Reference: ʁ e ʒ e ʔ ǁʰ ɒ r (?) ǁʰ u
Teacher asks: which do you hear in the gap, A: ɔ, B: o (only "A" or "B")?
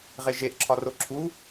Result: B